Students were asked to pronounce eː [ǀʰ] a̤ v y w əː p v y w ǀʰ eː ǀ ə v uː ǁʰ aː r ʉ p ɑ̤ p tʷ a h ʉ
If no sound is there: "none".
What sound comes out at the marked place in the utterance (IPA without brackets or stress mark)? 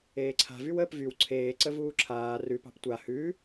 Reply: ǀʰ